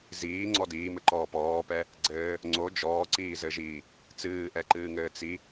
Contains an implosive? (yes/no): no